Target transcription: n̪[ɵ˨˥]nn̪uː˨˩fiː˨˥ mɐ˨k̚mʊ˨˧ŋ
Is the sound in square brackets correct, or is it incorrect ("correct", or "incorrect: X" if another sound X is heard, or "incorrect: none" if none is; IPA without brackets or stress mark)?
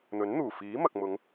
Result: correct